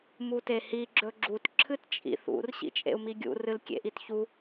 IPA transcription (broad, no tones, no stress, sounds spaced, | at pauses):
m u t e h i ɡ͡ǁ ɵ ɡ͡ǁ u t ǁʰ ɨ t t͡ʃʼ ḭ θ ṵ r ɕ ḭ t͡ʃʼ ḛ u̯ m i ɡʲ ṵ r ɨ l kʲ ḛ ʔ i t ç u